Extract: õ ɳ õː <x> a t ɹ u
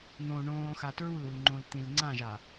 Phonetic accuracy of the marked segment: correct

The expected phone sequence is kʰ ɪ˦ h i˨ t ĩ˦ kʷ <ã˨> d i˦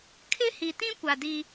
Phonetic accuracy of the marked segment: incorrect: a˨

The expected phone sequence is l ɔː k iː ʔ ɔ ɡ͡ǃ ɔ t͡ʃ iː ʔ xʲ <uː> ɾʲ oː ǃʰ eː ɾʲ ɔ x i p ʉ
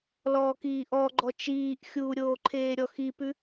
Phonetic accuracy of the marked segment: correct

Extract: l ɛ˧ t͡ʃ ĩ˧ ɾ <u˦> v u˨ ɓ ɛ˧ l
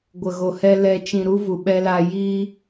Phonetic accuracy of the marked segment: correct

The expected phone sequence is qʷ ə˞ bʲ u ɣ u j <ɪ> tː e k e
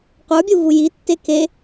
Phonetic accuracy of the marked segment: incorrect: i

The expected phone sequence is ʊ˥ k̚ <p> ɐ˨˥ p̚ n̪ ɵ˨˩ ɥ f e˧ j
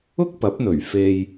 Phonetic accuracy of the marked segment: correct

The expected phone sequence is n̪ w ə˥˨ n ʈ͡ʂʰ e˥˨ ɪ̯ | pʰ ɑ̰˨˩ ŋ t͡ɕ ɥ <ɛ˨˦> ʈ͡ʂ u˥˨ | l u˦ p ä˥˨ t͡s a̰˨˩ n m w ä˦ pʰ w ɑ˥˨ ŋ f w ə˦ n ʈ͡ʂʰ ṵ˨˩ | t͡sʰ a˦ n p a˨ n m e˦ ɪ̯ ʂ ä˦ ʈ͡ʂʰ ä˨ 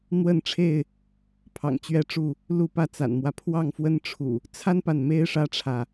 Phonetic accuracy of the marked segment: incorrect: ɛ˥˨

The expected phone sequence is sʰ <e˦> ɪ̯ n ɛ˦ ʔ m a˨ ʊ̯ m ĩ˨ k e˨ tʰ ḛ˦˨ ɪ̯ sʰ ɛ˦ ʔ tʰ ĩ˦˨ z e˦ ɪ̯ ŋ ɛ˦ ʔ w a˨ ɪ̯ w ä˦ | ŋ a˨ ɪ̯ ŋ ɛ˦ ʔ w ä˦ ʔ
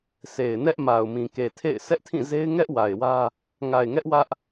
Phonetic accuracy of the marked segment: incorrect: e˨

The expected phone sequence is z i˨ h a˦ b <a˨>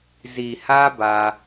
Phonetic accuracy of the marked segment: incorrect: a˦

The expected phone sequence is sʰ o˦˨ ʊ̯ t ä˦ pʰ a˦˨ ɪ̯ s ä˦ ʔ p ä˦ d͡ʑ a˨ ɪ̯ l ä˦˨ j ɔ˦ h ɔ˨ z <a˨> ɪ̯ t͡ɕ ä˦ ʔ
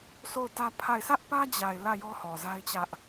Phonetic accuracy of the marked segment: incorrect: a˦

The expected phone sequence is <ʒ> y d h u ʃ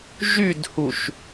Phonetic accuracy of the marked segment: correct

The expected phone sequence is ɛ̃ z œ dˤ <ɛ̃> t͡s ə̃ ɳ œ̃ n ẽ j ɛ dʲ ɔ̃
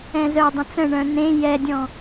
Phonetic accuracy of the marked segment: incorrect: ə̃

